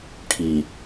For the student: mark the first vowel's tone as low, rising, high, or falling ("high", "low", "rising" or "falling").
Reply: low